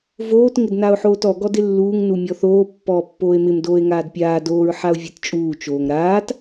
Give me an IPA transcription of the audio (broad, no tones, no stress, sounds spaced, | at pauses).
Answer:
v oː t ŋ ɪ d n a o̯ ħ oː t ɔ ɡ ɔ d ɪ lː uː ŋ n u mʲ ɔ θ oː pː ɔː pː oː e̯ m ɪ m d oː e̯ ŋ aː d pʲ aː d oː ɹ ħ a o̯ vʲ e t t͡ʃʼ uː t͡ʃ oː ŋ ɾ aː t